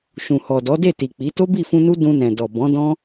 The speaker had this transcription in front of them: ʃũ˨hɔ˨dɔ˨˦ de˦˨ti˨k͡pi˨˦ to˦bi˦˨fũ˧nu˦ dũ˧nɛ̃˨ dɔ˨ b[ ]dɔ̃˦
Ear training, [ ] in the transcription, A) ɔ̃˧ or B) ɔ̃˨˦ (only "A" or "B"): B